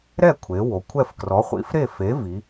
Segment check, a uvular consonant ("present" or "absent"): present